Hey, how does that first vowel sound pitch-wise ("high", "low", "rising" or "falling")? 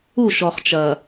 falling